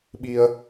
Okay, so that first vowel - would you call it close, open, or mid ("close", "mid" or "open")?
close